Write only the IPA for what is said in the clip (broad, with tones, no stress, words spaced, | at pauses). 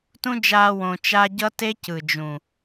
tũ˦d͡ʒaː˧ wõ˨t͡ʃa˧ɟʌ˦ te˦cɯ˨ d͡ʒũ˨